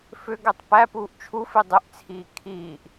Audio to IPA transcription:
f ʏ ɡ ɛ tˤ p æ p uː ʔ t͡ʃʰ u f i dˤ ʏ ʔ t͡sʰ iː kʰ iː ʔ

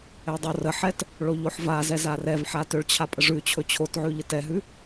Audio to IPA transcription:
ɛ dˤ o r ə ħ ɛ t | ɭ o ʎ o ħ v a z ɛ z a r ɛ v ħ a t ʏ ɭ t͡ɕʰ a pʼ ə ʐ ʉ t͡ɕʰ ɵ t͡ɕʰ o t ʕ ʉ ʎ ə t ɛ ɦ ʉ

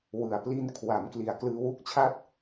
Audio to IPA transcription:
w ɯ˨˩ a̯ p l i˧ n kʰ w a˩˦ m k l i˨˩ a̯ k l ɯː˧ w u˥˩ k̚ t͡ɕʰ a˥˩ t̚

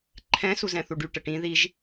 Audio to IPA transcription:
ǃʰ ɛ̃ s u z ɛ̃ θ u ɖ y ʈ ə ʈ ĩ ð i ʒ

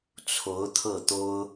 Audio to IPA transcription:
t͡sʰ o˧˥ ʊ̯ t̪ʰ ɤ˥˩ t̪ o˥ ʊ̯

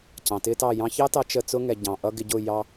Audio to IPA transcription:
c ɑ̃˨ t ɪː˦ t ɑ˦˨ j ɑ̃˧ ç ɑ˦ t ɑ˧ t͡ʃ ə˦˨ t͡s ʊ˦ ŋ ɛ˨ ɟ ɑ̃˨ ʔ ʌ˦ ɡ ɪ˧ ɟ ʊ˦˨ j ɑ˧

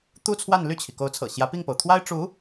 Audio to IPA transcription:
t̪ u˥ t͡sʰ w a˥˧ n l y˥˩ t͡ɕʰ i˩ k o˧˥ ʊ̯ t͡sʰ ɤ̰˨˩ ɕ j ä˧˥ p i˥˩ ŋ p o˩ ʊ̯ t̪ʰ w a˥ ɪ̯ ʈ͡ʂ u˧˥

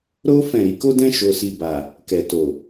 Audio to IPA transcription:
ɾ o˦ f ɛ̃˦˨ ɾ i˨˦ k o˦ d ɛ̃˦ ʃ o˧ s i˧ b a˨ | k ɛ˨ t o˨

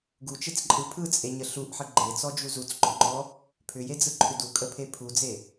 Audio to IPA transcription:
ɡ u t͡ʃ e t͡s ǃʼ ɯ pʰ ɯ t͡sʼ e ɲ ə ɬ u ʔ ħ ə ɡ͡ǃ e t͡s ɔ d͡ʒ u z u t͡s ɡ͡ǃ ɔ ŋ͡ǃ ɔ | pʰ ʏ j e d͡z ɯ ǃʰ ʏ d u kʼ ə pʰ e pʰ u d͡z e

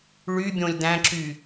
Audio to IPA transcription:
ɭ y bʲ õ lʲ d̪ æ̃ ǁ y

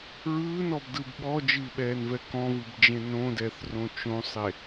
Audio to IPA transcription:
ɹ ɯː n ɔ b d ɯ b ɓ ɔ d͡ʒ ɨː ɓ ɛː n v ɛ k ɔ̃ v ɨ b d͡ʒ ẽ n õ d ɛː θ r õ t͡ʃ õ sˤ e

